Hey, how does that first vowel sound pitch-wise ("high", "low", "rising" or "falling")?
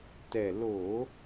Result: low